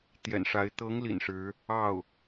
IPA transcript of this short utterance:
t̪ j ɛ̰˨˩ n ʂ a˧˥ ɪ̯ t̪ ɤ˧˥ ŋ l ḭ˨˩ n ʂ ɻ̩˧˥ | ɑ˥˩ ʊ̯

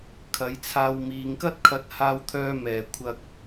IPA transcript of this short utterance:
kʰ ɐ˨˥ j t͡sʰ aː˧ w m iː˨˧ ŋ k ɐ˥ t̚ kʰ ɐ˨˥ t̚ h aː˧ w t̪ʰ œː˧ m ɛː˨˩ kʷʰ ɐ˧ k̚

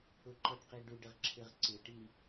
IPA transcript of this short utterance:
ʊ ǃ ɔ ɖ q i ɖ u ɖ ɪ ʁ ǁʰ ɪ ʁ ǀ ɪ ʈ i

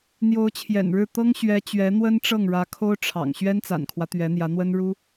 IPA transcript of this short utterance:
n̪ j o˧˥ ʊ̯ t͡ɕʰ j ɛ̰˨˩ n ɻ ɻ̩˥˩ t̪ ɤ˥ ŋ ɕ ɥ ɛ˧˥ t͡ɕ ɥ ɛ˧˥ n̪ w ə˥ n ʈ͡ʂ ɤ˥˩ ŋ ɻ ä˧˥ kʰ o˥ ʊ̯ ʈ͡ʂʰ ɑ̰˨˩ ŋ ɕ ɥ ɛ˥ n t͡s a̰˨˩ n kʰ w ä˦ t̪ ɥ ɛ˧˥ n̪ j ä˧˥ n̪ w ə˥ n ɻ u˥

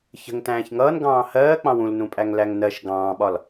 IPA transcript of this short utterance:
ç ə̤ ŋ t æ̃ː ç ŋ ʌː n ɡ ɑ̃ː h ɜː k͡p ɑ̃ w ũ l n ũ pʼ æ ŋ l æ ŋ n ɜ ʃ ɡ ɑ̃ː ɓ ɒ l

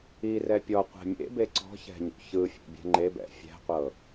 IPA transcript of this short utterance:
i r ɛ pʲ ɔ qʷ ɛ̤ mʲ ḛ b e ǀ ɔ̤ ç ɛ̤ ɲ ṵ ç ɯ fʲ ḛ bʲ ɛ̤ ŋ͡ǃ e b ɛ̰ fʲ ɛ̤ qʷ ɤ

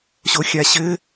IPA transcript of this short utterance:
ɕ o xʲ a ɕ ɘ

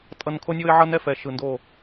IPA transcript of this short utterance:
tʼ ʌ˦ n kʰ o˦ nʲ o˦ ɪ̯ ʕ ʌ˦ n ɛ˦ f ɛ˨ ʃ ɯ˨ n d o˦˨

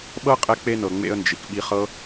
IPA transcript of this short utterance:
ɓ ɤ˦ qʼ ɛ˧ k͡p e˧ n ɤ˨ ŋ͡m ḛ˧ ə̯ n d͡ʒ i˨ k ɓ i˧ χ ɤ˦

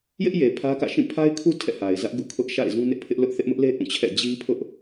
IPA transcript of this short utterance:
j ɪ˦ ʔ j e˨ pʰ ä˦ k ä̰˦˨ ʃ ĩ˦˨ pʰ a˦ ɪ̯ kʰ u˦ tʰ ɛ̰˦˨ h a˨ ɪ̯ z ä˦ ʔ ɡ ṵ˦˨ kʰ ʊ˦ ʔ ʃ a̰˦˨ ɪ̯ z ũ˦ n ɪ˦ ʔ pʰ ɪ˦ ʔ l ʊ˦ ʔ θ ɪ˦ ʔ m ʊ˦ ʔ l e˦ ʔ ũ˦˨ t͡ɕʰ ɛ̰˦˨ d͡ʑ i˦ pʰ ʊ˦ ʔ

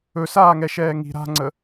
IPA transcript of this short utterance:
ɵ s aː ŋ ɛ ʃ ɛː ŋ i̤ ɾ a̤ ŋ͡ǀ ə

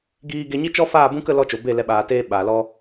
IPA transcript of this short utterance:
ɡ iː˧ ɡ e˧ ɲ i˦ t͡ʃ ɔ˦ f aː˦˨ b ũ˦ k ə˧ l ɔ˧ t͡ʃ o˨ b e˦˨ l ɛ˧ ɓ aː˨ t eː˧ ɓ aː˨ l ɔ˦

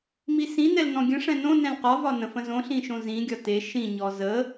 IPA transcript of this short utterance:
m i s ĩ n ɛ l n ɔ̃ ɡʲ ə̃ ʂ ɛ̃ n õ n ɛ̃ l q ɒ v ɒ n ə̃ f ə̃ z õ ɬ ĩ ʃ õ z ĩ ɡʲ ɒ t e ʃ ĩ ɲ ɔ z ə

